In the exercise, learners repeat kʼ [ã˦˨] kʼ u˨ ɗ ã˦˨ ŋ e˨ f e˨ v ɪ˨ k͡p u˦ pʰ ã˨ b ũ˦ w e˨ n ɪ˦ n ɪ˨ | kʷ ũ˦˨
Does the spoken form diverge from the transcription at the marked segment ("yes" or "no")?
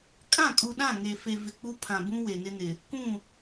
no